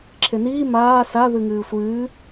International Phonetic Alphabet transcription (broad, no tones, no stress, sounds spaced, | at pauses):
ǁʰ e n iː m aː s a ð ɨ ŋ ɨː sʷ ɨː